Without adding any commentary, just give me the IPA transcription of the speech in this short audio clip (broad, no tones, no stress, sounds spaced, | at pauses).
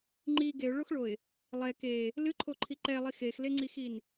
ŋ͡ǃ i ɡ e ʊ̯ ɭ o x ɭ o ɪ̯ | lˠ ɛ k e | l ɨ ǃʰ o ǃʰ i ǃ ɛ lˠ i x e x l e ŋ͡ǀ i x i n